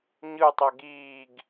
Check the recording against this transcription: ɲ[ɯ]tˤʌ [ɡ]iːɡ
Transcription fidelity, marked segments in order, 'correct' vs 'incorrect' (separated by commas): correct, correct